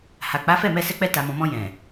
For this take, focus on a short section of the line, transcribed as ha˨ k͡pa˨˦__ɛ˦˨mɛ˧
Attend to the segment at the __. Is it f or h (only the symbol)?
f